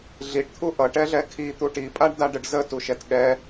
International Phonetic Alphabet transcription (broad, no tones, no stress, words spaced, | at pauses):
ɮiʈt̪ʰu ʔʌʈɛɮɛ kʰit̪u ʈipʼaɖdaɖəɖ zətuʃɛt ɠɛ